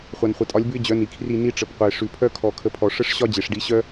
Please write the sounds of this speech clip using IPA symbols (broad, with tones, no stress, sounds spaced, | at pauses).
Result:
χʷ a˨ n χʷ ə˨ tʼ ɒ˨˥ lʲ b ʉ˦ ɪ̯ d͡ʑ œ˨˥ n i˨ kʰ r i˥˨ n i˦ ʈ͡ʂ ə˨ p qʷ ə˨ ɪ̯ ʂ ʉ˨ pʰ œ˦ kʰ ɔ˨ kʰ ə˨˥ pʰ ɔ˨ ʂ ə˦ ʂ ɕ ɒ˦ d͡ʑ e˨ ʂ ɖ i˨˥ ɕ œ˦